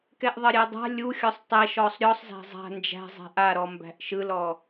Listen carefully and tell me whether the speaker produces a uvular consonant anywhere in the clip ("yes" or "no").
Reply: no